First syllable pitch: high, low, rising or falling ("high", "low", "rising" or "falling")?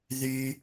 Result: high